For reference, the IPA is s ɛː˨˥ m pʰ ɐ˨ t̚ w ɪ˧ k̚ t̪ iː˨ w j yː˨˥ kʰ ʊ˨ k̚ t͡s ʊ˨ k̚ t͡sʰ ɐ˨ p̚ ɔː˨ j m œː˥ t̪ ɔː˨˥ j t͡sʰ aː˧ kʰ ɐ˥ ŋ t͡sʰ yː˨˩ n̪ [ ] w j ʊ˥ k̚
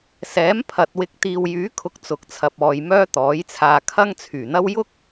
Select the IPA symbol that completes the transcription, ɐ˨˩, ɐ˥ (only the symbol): ɐ˥